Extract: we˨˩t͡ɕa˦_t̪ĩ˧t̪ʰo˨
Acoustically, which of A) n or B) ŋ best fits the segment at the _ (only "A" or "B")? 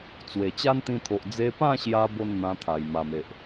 A